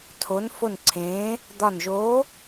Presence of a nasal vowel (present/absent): present